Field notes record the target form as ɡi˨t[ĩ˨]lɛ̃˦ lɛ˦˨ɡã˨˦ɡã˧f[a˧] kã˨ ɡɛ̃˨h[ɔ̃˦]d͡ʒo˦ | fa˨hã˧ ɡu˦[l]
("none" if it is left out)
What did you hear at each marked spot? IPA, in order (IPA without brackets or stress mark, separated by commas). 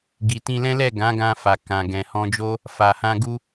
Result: ĩ˧, a˨, ɔ̃˧, none